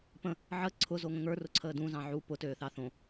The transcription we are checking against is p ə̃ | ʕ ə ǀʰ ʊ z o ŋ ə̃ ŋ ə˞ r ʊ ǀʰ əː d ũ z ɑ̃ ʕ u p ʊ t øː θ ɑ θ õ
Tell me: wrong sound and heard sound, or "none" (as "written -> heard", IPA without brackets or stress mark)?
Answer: none